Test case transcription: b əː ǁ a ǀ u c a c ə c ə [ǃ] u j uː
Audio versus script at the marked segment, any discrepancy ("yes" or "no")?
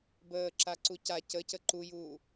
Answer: no